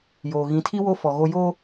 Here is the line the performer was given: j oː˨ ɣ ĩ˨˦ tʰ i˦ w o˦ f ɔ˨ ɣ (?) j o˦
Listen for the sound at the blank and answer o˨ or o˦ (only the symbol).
o˦